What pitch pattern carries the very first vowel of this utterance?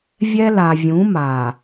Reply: high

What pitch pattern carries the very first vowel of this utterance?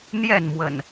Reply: falling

